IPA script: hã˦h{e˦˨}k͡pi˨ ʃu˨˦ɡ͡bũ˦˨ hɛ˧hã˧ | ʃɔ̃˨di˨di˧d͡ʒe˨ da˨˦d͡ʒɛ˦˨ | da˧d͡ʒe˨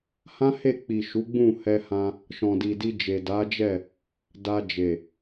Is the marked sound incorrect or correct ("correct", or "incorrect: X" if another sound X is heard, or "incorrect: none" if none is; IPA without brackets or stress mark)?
correct